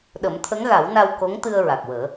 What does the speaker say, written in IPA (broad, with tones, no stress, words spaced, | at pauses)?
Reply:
ɗə˨˩˦mt̪ʰə˧˥ŋɣa˨˩˦wna˧w ko˧˥ŋt̪ɨ˧ə̯ ɹa˨˩k̚wəː˨˩˦